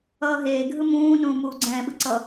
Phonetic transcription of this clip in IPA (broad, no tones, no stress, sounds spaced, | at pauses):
ʌː ɦ eː ɡʱ ɯ m ũː n ũː m uː ɡ͡ǀ ɛ̃ː ɓ ɯ ǀ ʌ